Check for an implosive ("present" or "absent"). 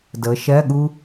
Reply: present